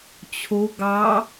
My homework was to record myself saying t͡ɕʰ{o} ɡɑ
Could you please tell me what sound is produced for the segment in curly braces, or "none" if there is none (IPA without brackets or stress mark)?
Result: o